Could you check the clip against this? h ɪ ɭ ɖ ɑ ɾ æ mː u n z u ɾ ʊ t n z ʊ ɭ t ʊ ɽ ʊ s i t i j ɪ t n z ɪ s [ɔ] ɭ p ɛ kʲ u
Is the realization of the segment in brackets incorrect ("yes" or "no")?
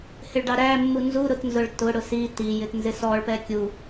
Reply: no